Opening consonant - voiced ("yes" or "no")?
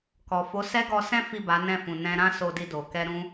no